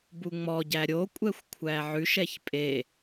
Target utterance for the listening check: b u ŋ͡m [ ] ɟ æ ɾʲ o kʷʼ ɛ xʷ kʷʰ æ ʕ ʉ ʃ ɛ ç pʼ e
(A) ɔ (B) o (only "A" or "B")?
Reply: A